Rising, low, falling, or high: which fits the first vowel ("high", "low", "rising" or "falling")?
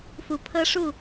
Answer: low